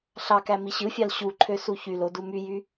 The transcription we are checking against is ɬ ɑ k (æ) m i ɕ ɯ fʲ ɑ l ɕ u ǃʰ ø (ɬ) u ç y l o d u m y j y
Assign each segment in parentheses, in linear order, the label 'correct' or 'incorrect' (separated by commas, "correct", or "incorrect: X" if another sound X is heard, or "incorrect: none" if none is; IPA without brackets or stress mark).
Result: correct, incorrect: s